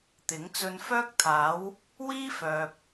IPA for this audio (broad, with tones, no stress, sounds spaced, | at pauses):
t̪ ɪ˨˥ ŋ t͡s ɵ˧ n f œː˥ k̚ t̪ʰ aː˨˥ w | w iː˥ f œː˨ p̚